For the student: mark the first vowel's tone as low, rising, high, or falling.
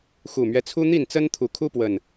low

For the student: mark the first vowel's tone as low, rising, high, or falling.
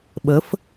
rising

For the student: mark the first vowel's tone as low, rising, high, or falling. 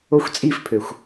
high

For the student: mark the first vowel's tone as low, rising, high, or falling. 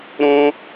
high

